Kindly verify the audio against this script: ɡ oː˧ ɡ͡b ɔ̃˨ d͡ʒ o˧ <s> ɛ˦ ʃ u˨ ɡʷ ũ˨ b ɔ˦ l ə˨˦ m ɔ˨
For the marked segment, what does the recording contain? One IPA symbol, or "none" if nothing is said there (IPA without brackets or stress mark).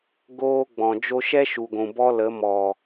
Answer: ʃ